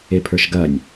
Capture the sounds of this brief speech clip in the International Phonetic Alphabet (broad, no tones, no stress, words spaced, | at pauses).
epʰə˞ʃɡɐnʲ